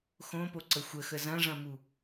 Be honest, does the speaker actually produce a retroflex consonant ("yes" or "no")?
yes